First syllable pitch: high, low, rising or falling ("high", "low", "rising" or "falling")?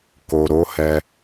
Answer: low